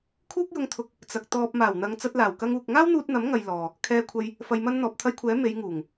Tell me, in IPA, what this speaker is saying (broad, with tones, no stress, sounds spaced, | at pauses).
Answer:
kʰ uː˥ k̚ j ʊ˧ ŋ t̪ʰ ʊ˧ k̚ | t͡s ɐ˨ k̚ t̪ ɔː˧ p̚ m aː˨˩ w n̪ ɐ˨ ŋ t͡s ɐ˧ t̚ l aː˨˩ w k ɐ˧ ŋ uː˨ k̚ ŋ aː˥ w n̪ uː˧ t̚ n̪ ɐ˨˥ m ŋ ɐ˨ j l ɔː˨ | kʰ ɛː˧ kʷʰ ɐ˧ j | f ɐ˨ j m ɐ˧ n n̪ ɔː˨ p̚ t̪ʰ ɐ˧ j kʷʰ ɛː˨˥ m e˨˧ j ŋ uː˨˩ ŋ